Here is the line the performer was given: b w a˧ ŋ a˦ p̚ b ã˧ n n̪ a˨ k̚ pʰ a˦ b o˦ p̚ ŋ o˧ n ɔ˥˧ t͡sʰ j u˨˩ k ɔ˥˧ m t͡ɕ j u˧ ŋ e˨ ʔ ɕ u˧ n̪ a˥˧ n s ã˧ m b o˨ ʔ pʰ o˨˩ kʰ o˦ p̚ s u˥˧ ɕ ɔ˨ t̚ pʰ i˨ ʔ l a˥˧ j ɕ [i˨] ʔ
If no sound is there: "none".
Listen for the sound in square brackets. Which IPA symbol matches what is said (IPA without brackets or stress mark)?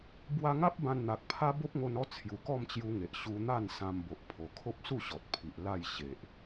e˨